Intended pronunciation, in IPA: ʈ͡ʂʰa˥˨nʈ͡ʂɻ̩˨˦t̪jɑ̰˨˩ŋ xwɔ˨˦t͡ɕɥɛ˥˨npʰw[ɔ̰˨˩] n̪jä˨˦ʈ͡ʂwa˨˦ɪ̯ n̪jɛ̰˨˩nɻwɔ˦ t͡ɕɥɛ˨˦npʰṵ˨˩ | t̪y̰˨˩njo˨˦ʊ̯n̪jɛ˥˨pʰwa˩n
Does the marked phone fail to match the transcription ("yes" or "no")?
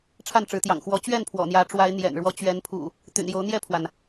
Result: no